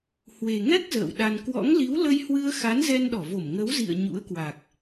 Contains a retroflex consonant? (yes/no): no